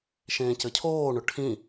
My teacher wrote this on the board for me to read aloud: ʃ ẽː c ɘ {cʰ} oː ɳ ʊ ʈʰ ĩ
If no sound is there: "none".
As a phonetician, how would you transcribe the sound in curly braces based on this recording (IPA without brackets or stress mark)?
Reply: cʰ